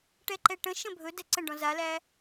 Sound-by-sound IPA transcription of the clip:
ʈ ɛ ǃ ɛ ʈ ə̃ ʃ ə̃ bʱ ɵ d ɛ ǀ ə̃ ɖ ɔ̃ z a l æ

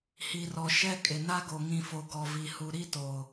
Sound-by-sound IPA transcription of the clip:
h i˨ r ɔ˨ ʃ ɛ˦ kʼ ɪ˨ n a˦ ɡ o˨ ŋ ĩ˨ f o˨ ɡ ɔ˨ v i˨ h u˨ ɾ i˦ t o˨

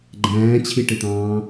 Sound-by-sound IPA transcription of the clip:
ɡ͡ǃ æ̃ː t͡ɕʰ i ʈ ɪ t̪ ɑ̃ː

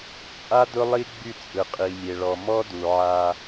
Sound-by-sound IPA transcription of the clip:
t͡sʼ a˦ d ʊ˦ lˠ i˦ ɡ͡b y˦˨ t͡sʼ ɯ˨ qʼ i˨ lʲ e˨ ɭ ɔ˨ m ɔ˦ d u˨ ʕ a˦

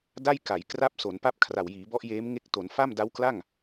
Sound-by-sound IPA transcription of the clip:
d a˥˩ j k a˩˦ j k r a˥˩ p̚ s o˩˦ n p a˥˩ p̚ kʰ r a˨˩ w j iː˩˦ b ɔ˦˥ ʔ j eː˦˥ m ŋ e˦˥ k̚ t o˩˦ n f a˥˩ m d a˦˥ w k l a˥˩ ŋ

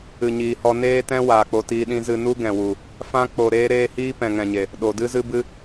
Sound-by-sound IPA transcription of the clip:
ɨ˨ ɲ iː˨ h ɔ˧ n eː˦ t ɛ̃˦ w aː˨ k͡p o˧ t iː˧ ɗ ĩ˧ z ɨ˧ n u˦ ɡ ɛ̃˨ w u˨ | f ã˦ k͡p o˧ ɾ eː˦ ɾ eː˦ h iː˦ p ɛ̃˨ ŋ ɛ̃˨ ɲ e˨ | ɗ o˨ d ɨ˦ z ɨ˦ b ɨ˦

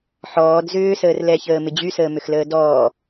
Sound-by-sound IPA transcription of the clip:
ħ ɔː d z ʏː s əː r l ɛ ç əː m ɪ d͡ʑ y s əː m ʏ x l əː d ɔː

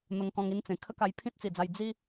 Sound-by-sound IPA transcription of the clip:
n̪ ə˧ ŋ k ɔ̃˧ ŋ i˥˧ n t͡s ẽ˨˩ kʰ ə˦ k a˧ j pʰ ĩ˦ t̚ t͡s i˨˩ d͡z a˧ j d͡z i˦

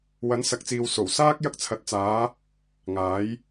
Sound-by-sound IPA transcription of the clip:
w ɐ˨˥ n s ɐ˨˥ k̚ t͡s iː˨ w s o˨˩ w s aː˥ k̚ j ɐ˧ k̚ t͡sʰ ɐ˨ t̚ t͡s aː˨˧ | ŋ aː˨˥ j

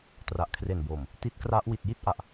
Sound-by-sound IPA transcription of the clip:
t r a˨˩ ʔ kʰ r e˨˩ n b oː˨˩ m | t i˦˥ t̚ k r a˦˥ ʔ w i˨˩ t̚ j i˥˩ t̚ ʔ a˨˩ ʔ

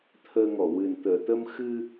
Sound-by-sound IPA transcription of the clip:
t̪ʰ əː˧ ŋ ɔ˨˩˨ w ɨ˨˩ n t̪ əː˨˩˨ t̪ ə˧ m x ɨ˧

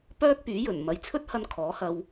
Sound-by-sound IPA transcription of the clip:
p œː˥ k̚ p yː˨˥ j ɵ˨˩ n m ɐ˨˧ j t͡sʰ ɵ˥ t̚ h ɐ˧ n kʰ ɔː˨˥ h ɐ˧ w

